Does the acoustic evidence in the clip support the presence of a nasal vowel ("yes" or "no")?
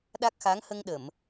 no